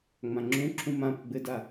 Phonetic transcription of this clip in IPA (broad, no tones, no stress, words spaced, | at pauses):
ŋ͡mãŋ͡ǁũǁʰũ mãpə ɡ͡bɘda